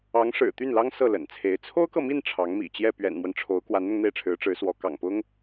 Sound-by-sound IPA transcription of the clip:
ɑ˧˥ ŋ ʂ ɻ̩˨˩ t̪ y˥˩ n l ɑ˥ ŋ s ɤ˥˩ l ə̰˨˩ n t͡sʰ e˧˥ ɪ̯ t͡sʰ o˥ ʊ̯ k ɤ˨ m i˥˩ n ʈ͡ʂʰ ɑ˧˥ ŋ m ḭ˨˩ t͡ɕ j ɛ˥˩ p ɥ ɛ̰˨˩ n m w ə˦ n ʈ͡ʂʰ o˧˥ ʊ̯ k w a˧˥ n n̪ ʊ˧ ŋ n̪ e˥˩ ɪ̯ ʈ͡ʂʰ ɻ̩˧˥ ʈ͡ʂ ɻ̩˧˥ s w ɔ˧˥ k ɑ̰˨˩ ŋ p ʊ˥ ŋ

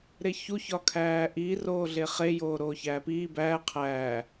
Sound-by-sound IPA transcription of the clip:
ɾ e ç u ç ɒ kʰ æː ʔ iː r oː ɮ e χ e j oː ɾ oː ç æː p iː b æː qʰ æː

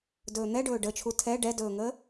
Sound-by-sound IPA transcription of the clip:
d ɵː n̪ ɛ ɖ ɵː ɖ ə t͡ʃʰ u tʰ ɛ ɖ ɛ d ɵː ŋ əː

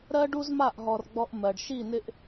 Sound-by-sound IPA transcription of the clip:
ɾ ɜ˦ ɖ u˦ z m a˦˨ ʔ ɦ ɔ˨ r ɡ͡b ɔ˦ ʔ m ɜ˨ ɖ ʃ i˦˨ n ɪ˦ ʔ

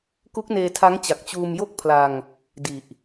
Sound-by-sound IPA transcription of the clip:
k u˦˥ k̚ n eː˧ tʰ a˦˥ ŋ t͡ɕ a˨˩ k̚ t͡ɕ uː˧ m j o˥˩ k̚ pʰ l a˧ ŋ | d i˨˩ ʔ

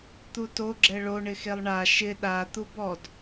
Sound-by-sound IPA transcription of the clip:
t̪ u t o ɡ͡ǁ ɛ ɭ o ɳ ɪ x e lˠ ɳ a ʃ ɪ ɗ a t̪ u b ɔ d

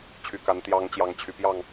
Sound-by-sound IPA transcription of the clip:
t͡ɕʰ y˨˩ k a˨˦ n t̪ j ɑ˨˦ ŋ t͡ɕ j ɑ˨˦ ŋ t͡ɕʰ y˨˩ p j ɑ˥˨ ŋ

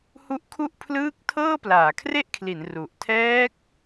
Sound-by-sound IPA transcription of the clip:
h u˦˥ ʔ kʰ u˥˩ ʔ pʰ l ɯː˥˩ k̚ tʰ ɤː˥˩ p l aː˩˦ kʰ r e˥˩ ʔ kʰ l i˩˦ n r u˨˩ ʔ tʰ ɛː˦˥ k̚

